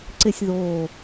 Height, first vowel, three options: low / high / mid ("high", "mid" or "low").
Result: high